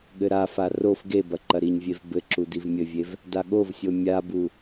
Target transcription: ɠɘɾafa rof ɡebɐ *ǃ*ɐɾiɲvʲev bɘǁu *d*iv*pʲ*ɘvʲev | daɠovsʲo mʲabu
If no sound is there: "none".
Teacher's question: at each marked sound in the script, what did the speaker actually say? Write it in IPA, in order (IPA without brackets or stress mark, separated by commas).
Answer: ǃ, d, mʲ